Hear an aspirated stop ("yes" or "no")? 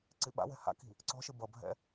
no